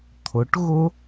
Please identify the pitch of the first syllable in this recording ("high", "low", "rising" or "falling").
rising